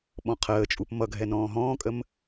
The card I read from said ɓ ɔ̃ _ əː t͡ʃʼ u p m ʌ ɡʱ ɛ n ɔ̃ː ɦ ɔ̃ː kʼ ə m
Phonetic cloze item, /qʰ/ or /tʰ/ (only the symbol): qʰ